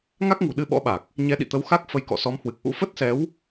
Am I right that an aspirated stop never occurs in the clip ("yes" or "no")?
yes